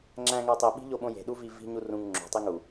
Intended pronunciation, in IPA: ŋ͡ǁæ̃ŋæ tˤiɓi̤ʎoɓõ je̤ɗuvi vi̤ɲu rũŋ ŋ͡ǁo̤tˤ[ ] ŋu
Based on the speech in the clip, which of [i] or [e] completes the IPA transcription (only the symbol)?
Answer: i